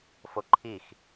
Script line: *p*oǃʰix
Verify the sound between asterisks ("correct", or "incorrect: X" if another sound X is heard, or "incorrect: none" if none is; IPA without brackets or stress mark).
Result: incorrect: f